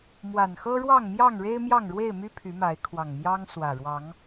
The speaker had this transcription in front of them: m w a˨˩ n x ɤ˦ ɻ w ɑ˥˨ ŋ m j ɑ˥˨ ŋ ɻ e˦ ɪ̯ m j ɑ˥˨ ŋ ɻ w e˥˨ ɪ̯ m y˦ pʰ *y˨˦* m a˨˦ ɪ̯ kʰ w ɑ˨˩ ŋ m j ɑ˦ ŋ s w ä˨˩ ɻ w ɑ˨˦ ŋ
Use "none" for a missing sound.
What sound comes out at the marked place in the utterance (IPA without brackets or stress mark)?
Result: y˨˦